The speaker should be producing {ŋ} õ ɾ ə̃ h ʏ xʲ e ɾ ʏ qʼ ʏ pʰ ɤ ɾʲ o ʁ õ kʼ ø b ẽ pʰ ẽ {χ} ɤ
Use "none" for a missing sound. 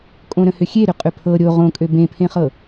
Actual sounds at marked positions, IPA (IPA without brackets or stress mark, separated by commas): kʼ, χ